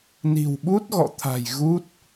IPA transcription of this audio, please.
ni̤˨˩wɓu˦˥t̚ɣɔ̰˧˨t̪ʰa̤˨˩j ɣu˦˥t̚

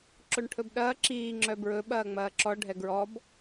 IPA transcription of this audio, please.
ǁoɳʈʰɵbɗɐː ǁiː ŋ͡ǁœbɹɵ ɓɐːŋ͡mɐːǁɔ ɖʱɛɡɹɔb

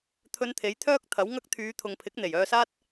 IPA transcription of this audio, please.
t̪ʰɵ˧nt̪ʰe˨˥jt̪ʰœː˥k̚ t̪ʰɐ˨˥wŋɐ˥k̚ t̪ʰyː˨˧t̪ʰʊ˨ŋpʰɪ˨˥k̚ n̪e˨˩jœː˧saː˥t̚

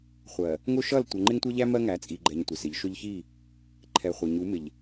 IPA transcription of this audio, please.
χʷɜ˨ | ŋʊ˦ʃʌ˦˨l tʷʌ˨ŋ͡ǃɪ˦ŋtʷʌ˦ʎæ˦ mɜ˦ŋæ˨˦t͡sʼi˨ ɡ͡ǃɛ˨ɲ tʷɪ˨sɪ˨˦ʎʃʊ˦ʎ çi˦˨ | ǃʰɛ˨ χʷʌ˨ɲu˨˦mɪ˨ʎ

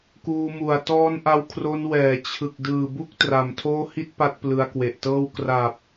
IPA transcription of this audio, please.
kuː˧mu˨˩a̯ tɔː˦˥n ʔa˧w kʰro˧n wɛː˩˦ t͡ɕʰɯ˨˩k̚ dɯː˨˩bu˦˥k̚ tra˨˩mtʰoː˥˩ hi˥˩t̚ pa˥˩t̚plɯ˧a̯kwe˨˩ʔtɤː˥˩w kra˨˩p̚

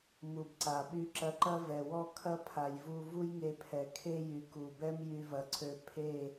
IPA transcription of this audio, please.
mu˨bǀa˨ ɓy˧ǁɐ˧ǃɐ˦ vɛ˨wɔ˦ kʰɐ˦pʰa˨jvu˧ vu˦jŋe˧pʰɛ˨ kʰe˦jy˨ku˨bɛ˦m jy˧vɐ˨ ǀʰø˧ pʰe˦˨

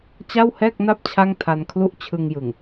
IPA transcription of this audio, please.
t͡ɕa˥˩whɛː˥˩k̚na˥˩p̚ t͡ɕʰa˥˩ŋtʰa˧nkʰlu˥˩ʔ t͡ɕʰɯ˧ŋjɯ˨˩ŋ

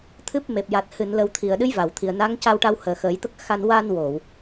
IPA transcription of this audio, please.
t̪ʰɨ˦˥p̚ me˨˩p̚ja˨˩t̚ hɨ˨˩˨nlə˨˩wt̪ʰi˨˩˨ə̯ ɗɨ˧˥jva˨˩˨wt̪ʰi˨˩ə̯ na˧˥ŋ ca˧wʈa˧whəː˨˩ xəː˨˩˦jt̪ə˦˥k̚ xa˧n wa˧nwo˨˩˨w

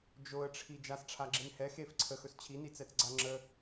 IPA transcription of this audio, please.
d͡ʒoə̯ʈ͡ʂʰi d͡ʒasʈ͡ʂʰaɡ͡ǁen hɛ xef ǀʰəxɵs t͡ɕʰinit͡sɛt͡sɡ͡ǀa ŋ͡ǁə

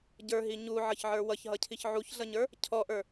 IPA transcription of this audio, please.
ɟə˞ɦi ɲuʕʌçʕə˞ wʌçɦʌcʰiç ʕuçɮʌɲə˞ | cʰɔʔə˞

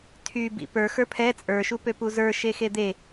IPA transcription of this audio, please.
tʰy bḭpə˞ xə˞pʰɛ t͡sʼə˞ʃu pøpuzə˞ ʃexed̪e

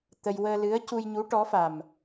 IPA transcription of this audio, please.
t̪ə˧j wəː˧lɨ˧˥ə̯cu˧jɲu˧˥ ʈɔ˧˥fa˨˩m

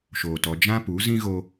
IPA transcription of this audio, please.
ʃoː˨tɔ˧ d͡ʒã˦pu˨˦ zĩ˦ɣo˧

